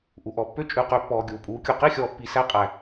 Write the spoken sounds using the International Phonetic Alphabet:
ʔu˨ʔɔ˨pːø˦ t͡ʃʼʉ˨qø˨pːɔː˨ ɡʲuː˨pʼuː˨˦kʲu˨ qi˦˨xʲɔː˨pːi˨ sæ˦qʼæ˨

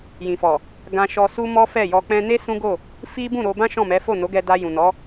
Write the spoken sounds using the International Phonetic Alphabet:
jĩ˨fɔ˨ | ɡã˧ʃɔ˧ su˧ mɔ˦fɛ˦˨jɔ˧ k͡pɛ̃˧ne˦ sũ˦ɡo˦˨ | fi˦ bũ˦˨ɾo˧bã˦ ʃɔ̃˦˨mɛ˨˦ fo˦˨no˨˦ɡɛ˧da˧ jũ˨nɔ˨˦

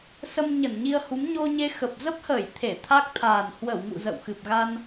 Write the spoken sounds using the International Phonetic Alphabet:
sə˧m ɲə˧˩nɲi˧ə̯hu˨˦m ɲo˧ɲe˧ xə˨˩p̚ zə˦˥p̚həː˧˩j t̪ʰe˧˩ t̪ʰa˦˥k̚t̪ʰaː˨˩n hwə˧˩wŋṵ˧˨ zə̰˧˨wxɨ˨˩p̚ɣa˧n

